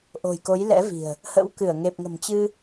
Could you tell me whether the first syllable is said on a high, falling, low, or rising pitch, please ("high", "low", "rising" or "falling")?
low